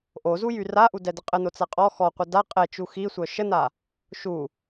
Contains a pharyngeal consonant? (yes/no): no